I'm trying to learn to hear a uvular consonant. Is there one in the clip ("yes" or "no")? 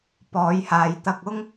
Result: no